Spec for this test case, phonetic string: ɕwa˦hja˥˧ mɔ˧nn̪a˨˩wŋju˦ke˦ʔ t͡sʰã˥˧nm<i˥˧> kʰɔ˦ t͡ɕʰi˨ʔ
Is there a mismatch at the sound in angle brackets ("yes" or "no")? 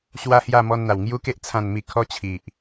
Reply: no